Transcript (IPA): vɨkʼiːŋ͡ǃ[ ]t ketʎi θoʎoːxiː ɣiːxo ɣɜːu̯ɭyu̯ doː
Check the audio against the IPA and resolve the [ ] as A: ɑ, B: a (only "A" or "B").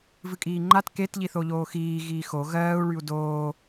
B